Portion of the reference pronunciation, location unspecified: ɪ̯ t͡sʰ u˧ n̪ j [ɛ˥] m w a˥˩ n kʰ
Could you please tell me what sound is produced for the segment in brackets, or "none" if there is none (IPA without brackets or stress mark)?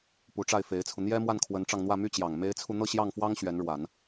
ɛ˥